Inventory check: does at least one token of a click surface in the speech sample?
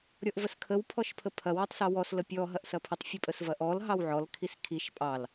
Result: no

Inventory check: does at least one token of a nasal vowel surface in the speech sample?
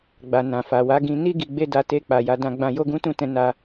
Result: yes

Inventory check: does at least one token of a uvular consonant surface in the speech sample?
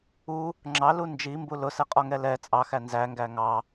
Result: yes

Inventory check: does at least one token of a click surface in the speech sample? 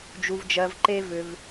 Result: yes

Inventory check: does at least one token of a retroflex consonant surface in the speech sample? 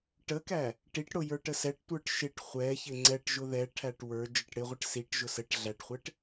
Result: yes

